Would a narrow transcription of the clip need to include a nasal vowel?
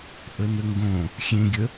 yes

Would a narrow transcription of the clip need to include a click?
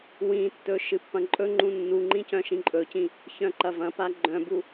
yes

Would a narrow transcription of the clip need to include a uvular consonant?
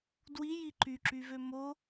no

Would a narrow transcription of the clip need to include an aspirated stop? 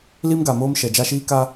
no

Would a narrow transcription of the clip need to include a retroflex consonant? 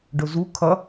yes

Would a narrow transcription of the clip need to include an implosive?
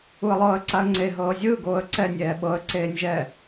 yes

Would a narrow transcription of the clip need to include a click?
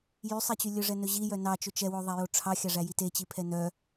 no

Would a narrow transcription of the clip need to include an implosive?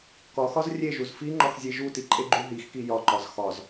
no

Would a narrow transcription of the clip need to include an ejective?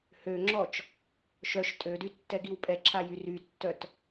yes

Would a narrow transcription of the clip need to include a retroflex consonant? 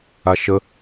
no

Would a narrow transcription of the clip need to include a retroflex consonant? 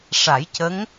yes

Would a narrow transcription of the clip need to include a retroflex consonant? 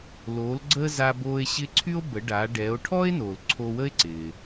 yes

